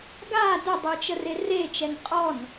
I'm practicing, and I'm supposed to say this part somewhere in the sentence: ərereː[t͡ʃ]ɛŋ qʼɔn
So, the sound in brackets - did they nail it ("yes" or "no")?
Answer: yes